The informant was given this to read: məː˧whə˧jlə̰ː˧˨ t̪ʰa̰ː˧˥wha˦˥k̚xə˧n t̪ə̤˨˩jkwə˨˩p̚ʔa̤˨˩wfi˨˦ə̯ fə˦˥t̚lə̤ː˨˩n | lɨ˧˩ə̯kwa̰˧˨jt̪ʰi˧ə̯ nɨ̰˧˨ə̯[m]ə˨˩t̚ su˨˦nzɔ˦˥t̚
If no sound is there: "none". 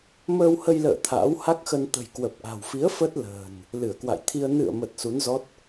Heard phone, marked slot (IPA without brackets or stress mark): m